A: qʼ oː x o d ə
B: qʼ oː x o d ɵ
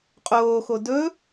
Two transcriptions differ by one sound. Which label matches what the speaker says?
B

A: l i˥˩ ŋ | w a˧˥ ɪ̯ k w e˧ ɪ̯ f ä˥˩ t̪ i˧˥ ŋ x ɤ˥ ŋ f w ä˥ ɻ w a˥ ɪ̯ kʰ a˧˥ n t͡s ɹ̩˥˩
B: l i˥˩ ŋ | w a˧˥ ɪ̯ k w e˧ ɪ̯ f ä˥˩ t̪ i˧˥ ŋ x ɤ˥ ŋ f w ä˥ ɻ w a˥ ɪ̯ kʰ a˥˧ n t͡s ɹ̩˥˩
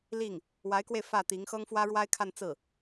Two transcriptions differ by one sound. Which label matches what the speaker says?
B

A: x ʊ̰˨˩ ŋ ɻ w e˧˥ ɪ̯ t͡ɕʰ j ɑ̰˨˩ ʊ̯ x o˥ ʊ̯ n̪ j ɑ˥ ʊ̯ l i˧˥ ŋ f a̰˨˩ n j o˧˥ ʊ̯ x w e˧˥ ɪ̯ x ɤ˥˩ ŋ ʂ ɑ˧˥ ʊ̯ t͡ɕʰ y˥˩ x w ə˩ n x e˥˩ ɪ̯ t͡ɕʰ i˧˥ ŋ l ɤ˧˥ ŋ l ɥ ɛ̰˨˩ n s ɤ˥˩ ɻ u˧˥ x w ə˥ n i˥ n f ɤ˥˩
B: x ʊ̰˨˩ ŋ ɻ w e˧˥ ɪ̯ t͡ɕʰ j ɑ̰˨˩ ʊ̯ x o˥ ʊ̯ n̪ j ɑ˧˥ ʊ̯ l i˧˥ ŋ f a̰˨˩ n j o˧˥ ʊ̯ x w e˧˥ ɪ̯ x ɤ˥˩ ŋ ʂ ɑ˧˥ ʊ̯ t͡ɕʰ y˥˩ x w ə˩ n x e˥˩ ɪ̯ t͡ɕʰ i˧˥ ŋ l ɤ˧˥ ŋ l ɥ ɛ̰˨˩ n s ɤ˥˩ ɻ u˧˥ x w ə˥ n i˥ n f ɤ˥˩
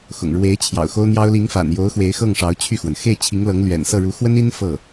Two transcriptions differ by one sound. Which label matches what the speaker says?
A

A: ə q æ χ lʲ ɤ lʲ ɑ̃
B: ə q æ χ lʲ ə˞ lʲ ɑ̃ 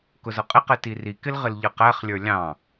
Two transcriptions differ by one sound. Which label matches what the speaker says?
B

